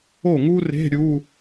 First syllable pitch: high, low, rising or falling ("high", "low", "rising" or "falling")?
falling